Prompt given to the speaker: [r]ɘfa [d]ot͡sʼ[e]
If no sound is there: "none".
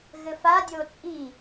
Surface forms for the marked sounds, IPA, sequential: ɣ, dʲ, i

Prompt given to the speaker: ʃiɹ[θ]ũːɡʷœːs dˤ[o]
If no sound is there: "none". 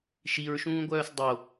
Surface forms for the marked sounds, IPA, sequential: ʃ, o

